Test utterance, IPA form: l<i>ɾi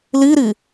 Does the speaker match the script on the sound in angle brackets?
yes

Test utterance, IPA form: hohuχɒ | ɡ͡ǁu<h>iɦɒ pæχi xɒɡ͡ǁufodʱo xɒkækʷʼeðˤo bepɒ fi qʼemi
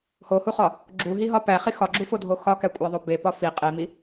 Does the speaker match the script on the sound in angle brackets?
no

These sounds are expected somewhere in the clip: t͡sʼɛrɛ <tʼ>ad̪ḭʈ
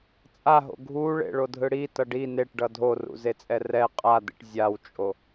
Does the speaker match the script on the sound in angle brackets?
no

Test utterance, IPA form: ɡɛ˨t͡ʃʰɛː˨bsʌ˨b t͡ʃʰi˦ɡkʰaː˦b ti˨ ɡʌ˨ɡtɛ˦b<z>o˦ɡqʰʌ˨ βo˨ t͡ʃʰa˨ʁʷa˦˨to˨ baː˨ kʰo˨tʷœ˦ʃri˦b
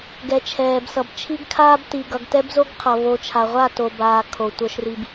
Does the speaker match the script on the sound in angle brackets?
yes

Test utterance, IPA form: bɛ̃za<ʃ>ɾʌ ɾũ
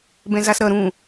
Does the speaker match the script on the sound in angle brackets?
no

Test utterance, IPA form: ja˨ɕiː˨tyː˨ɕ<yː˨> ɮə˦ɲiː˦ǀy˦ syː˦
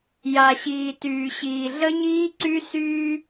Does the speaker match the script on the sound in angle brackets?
no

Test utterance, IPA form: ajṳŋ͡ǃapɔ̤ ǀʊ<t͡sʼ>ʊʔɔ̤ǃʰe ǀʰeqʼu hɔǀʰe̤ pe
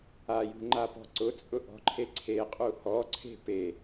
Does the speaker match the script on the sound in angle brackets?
yes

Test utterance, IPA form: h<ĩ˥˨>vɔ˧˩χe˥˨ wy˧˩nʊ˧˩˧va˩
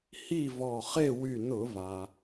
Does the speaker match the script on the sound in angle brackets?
no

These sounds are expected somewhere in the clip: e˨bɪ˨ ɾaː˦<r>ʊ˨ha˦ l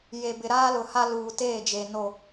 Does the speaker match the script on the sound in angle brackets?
no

